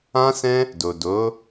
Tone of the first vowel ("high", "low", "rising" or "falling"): high